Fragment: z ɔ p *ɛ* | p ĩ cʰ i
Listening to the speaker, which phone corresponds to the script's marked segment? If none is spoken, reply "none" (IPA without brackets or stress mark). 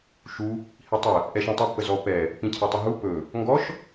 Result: ɛ